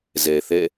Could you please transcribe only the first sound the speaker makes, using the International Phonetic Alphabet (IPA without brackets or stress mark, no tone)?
z